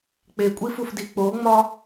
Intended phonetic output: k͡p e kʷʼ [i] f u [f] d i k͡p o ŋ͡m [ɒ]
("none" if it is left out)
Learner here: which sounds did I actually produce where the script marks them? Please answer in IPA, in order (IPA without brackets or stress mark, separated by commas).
i, f, ɒ